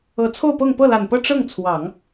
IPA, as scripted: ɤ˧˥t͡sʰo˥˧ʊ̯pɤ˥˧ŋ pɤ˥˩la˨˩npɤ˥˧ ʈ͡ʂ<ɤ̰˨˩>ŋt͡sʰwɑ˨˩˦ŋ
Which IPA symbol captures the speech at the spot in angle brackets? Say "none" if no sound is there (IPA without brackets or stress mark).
ɤ˥˩